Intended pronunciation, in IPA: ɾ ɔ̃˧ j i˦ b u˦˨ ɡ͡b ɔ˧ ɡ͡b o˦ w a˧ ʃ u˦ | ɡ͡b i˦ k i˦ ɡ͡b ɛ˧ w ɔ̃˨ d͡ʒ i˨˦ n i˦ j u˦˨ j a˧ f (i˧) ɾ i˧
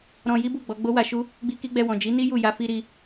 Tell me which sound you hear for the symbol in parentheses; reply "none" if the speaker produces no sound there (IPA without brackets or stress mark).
i˧